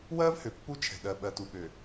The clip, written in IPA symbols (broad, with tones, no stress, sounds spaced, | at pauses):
w ɜː˦ v h ø˨ pː u˦ t͡ʃʰ ɛ̤˨ ɗ ɜ˨ ɓ ɜ˨ t u˨ ɓ ø˨